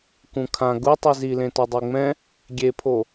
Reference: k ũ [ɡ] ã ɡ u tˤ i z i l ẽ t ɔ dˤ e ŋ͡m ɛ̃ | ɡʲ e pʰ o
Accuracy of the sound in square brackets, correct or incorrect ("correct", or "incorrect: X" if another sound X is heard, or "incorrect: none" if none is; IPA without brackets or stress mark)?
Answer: incorrect: kʰ